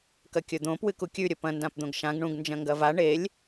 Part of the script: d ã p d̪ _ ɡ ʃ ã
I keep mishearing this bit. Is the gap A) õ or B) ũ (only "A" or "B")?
A